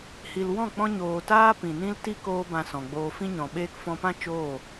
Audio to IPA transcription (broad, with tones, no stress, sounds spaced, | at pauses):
h i˨ l w ɔ̃˦˨ k͡p ɔ̃˧ ɲ oː˨ t aː˦ p ĩ˨ n ĩ˦ l t i˦ k oː˦ b ã˧ s ɔ̃˨ ɡ͡b oː˧ f ĩ˧ ɲ ɔ̃˨ ɓ eː˧ k f ɔ̃˧ p ã˦ t͡ʃ oː˦˨